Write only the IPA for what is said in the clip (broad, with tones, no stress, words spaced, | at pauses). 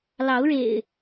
lɑ˨˦ʊ̯ɻḛ˨˩ɪ̯